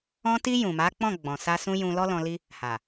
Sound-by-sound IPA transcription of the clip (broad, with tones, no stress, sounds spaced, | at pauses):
ɔ̃˧ t i˧ j ũ˨ m a˨˦ k͡p ɔ̃˦˨ ɡ͡b ɔ̃˨ s a˧ s ũ˧ j ũ˧ l ɔ˦ l ɔ̃˧ l i˦ | h a˨